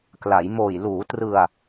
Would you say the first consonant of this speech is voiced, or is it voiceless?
voiceless